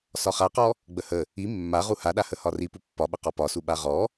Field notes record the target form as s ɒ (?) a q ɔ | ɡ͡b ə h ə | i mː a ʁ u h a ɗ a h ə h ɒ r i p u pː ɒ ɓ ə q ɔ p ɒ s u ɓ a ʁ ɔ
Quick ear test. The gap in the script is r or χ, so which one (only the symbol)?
χ